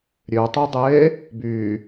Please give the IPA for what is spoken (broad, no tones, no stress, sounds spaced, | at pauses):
ɾʲ ø tˤ u dˤ eː | b yː